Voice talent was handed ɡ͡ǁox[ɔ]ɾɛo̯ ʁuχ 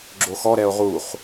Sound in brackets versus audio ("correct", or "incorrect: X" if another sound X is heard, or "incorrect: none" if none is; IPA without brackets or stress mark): correct